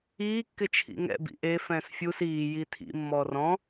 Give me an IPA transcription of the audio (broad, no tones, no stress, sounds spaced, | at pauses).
iː kː ɪ t͡ʃʰ ḭ ŋ ɛ̰ b ḭ ʔ e f ɛ̃ː s fʲ u s iː j i tʰ ḭ mː ɔː r ɔ̃